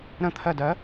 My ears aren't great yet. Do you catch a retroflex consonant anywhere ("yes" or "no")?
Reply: no